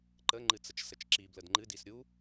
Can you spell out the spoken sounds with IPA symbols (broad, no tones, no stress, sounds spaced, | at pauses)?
ǃ ə ŋ͡ǃ ɨ t͡s ə t͡ʃ s ə t͡ʃ ǁ i b l ə d ŋ͡ǃ ɨ d i s ɾʲ u